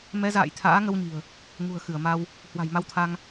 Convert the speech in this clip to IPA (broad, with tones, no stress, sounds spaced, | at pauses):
m ɛ˨˦ z a̰ː˧˨ j t̪ʰ a̰ː˧˥ ŋ ə˧ w ɲ i̤˨˩ ə̯ | ŋ ṳ˨˩ ə̯ x ɨ˧˩ ə̯ m a˧ w | h w a̤˨˩ j m a˧ w t̪ʰ a˧ ŋ